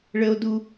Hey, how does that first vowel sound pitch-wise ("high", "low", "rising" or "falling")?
high